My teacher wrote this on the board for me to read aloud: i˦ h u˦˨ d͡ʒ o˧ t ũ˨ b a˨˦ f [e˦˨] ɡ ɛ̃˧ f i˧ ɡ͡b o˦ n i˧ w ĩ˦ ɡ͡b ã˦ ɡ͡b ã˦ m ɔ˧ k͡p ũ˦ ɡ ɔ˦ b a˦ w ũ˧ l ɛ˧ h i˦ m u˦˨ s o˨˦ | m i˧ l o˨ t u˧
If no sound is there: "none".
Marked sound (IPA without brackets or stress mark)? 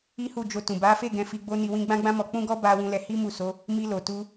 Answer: e˦˨